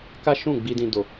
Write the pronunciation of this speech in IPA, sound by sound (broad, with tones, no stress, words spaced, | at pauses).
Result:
ka˦ ʃũ˦˨ɡ͡bi˧dĩ˧ do˧